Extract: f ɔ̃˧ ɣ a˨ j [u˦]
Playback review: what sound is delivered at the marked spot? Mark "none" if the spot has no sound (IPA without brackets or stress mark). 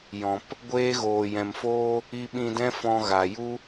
u˦